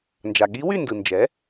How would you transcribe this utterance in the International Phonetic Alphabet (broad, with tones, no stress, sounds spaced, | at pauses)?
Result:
n d͡ʒ a˩ ɠ i˧˥ w y˥˨ n d ɯ˩ n d͡ʒ ɛ˩˥